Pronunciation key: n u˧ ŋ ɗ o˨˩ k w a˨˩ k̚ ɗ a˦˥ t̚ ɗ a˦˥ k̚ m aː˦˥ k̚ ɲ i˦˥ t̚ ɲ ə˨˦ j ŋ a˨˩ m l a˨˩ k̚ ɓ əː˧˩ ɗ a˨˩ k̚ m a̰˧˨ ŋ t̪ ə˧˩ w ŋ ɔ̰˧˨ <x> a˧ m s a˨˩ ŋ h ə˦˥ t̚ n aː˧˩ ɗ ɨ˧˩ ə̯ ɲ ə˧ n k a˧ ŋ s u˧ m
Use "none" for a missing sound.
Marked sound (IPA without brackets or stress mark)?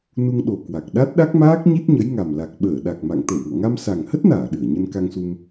ŋ